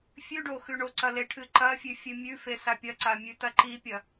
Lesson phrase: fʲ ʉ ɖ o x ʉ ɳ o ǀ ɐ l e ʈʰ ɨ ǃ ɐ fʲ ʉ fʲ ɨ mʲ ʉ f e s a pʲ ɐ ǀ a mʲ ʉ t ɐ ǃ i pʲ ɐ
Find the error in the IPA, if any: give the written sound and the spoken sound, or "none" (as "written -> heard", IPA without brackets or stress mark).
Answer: none